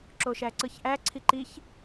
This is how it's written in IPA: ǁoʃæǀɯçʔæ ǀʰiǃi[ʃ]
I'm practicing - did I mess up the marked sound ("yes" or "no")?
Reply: yes